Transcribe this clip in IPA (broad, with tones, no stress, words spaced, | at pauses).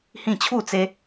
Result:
hĩ˥˧ t͡ɕʰu˥˧t͡se˦